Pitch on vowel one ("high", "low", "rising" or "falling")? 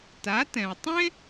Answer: rising